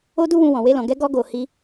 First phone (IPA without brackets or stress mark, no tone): o